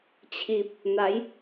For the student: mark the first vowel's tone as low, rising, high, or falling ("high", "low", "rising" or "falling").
low